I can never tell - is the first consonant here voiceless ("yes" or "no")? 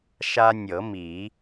yes